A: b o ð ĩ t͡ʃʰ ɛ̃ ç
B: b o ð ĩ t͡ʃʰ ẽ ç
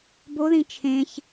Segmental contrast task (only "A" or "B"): B